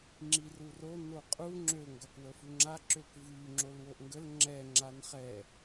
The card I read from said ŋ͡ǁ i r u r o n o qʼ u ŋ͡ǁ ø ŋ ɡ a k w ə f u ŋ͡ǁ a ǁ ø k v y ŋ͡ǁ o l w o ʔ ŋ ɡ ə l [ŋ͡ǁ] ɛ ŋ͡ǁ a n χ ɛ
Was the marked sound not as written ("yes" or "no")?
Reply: no